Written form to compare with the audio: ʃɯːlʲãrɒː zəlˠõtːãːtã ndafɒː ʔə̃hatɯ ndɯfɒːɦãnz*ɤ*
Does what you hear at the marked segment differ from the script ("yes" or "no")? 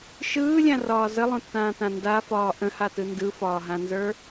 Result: yes